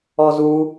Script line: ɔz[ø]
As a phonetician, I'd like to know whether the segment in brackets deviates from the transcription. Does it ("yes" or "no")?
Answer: yes